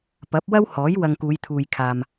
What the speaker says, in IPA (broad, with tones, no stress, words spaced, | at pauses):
pɐ˨˥p̚wɐ˥whɔː˨˥j wɐ˧ŋkuː˨˧jt̪ʰuː˨jkʰaː˨m